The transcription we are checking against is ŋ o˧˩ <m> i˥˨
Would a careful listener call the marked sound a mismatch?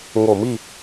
no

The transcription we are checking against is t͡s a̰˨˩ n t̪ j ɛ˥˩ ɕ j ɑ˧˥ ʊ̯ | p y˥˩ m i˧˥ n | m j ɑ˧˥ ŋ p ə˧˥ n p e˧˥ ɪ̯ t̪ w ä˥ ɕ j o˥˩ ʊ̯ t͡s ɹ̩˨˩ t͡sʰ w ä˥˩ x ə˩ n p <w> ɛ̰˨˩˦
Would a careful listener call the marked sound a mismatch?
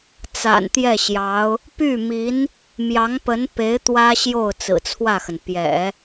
yes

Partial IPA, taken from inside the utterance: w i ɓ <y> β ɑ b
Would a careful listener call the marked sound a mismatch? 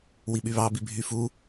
no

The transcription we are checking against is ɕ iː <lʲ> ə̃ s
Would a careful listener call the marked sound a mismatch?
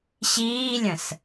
no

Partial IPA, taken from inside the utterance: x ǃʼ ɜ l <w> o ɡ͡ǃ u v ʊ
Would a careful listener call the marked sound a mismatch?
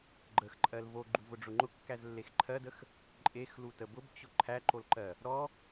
yes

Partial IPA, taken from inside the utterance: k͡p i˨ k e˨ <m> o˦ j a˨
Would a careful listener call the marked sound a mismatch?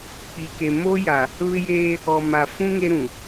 no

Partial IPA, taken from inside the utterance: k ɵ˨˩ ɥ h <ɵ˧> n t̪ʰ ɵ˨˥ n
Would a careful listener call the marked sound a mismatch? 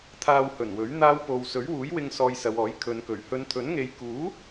yes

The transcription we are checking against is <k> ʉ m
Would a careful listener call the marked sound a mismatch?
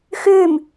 yes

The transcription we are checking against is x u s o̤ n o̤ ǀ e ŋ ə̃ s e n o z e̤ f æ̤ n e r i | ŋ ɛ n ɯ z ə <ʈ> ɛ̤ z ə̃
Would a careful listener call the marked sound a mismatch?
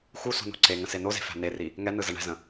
yes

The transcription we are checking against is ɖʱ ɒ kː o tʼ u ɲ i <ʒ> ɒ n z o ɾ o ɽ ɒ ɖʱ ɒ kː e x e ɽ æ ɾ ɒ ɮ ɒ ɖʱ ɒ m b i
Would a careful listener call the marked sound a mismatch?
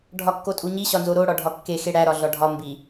yes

